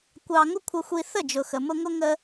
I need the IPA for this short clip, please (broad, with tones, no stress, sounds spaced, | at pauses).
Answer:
kʷ ɑ˧ ŋ ʊ˦ kʷʰ ə˧ xʷ i˧ θ ə˦˨ d͡ʒ ʊ˨ x ə˨ m ʊ˧ ŋ ʊ˧ ŋ ə˧